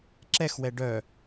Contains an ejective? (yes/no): no